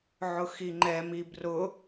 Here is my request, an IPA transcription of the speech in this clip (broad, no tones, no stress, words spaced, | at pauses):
ʕʊxiŋ͡ǃɛmi brʊ